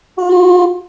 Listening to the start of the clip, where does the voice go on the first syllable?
high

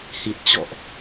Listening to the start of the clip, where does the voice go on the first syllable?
low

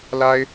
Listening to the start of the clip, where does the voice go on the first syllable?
high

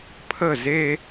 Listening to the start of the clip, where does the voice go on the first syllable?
falling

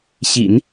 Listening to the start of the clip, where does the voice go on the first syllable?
low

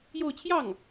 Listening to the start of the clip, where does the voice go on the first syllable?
falling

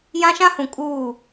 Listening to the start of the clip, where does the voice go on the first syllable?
high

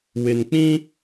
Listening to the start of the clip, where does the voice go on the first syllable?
low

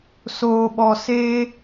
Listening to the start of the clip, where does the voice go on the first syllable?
low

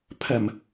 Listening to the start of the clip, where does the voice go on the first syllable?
low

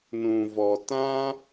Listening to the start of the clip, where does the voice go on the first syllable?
low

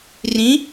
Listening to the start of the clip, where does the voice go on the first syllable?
rising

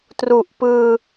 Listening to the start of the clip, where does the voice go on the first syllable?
low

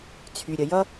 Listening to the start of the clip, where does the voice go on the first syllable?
low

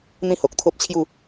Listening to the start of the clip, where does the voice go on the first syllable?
high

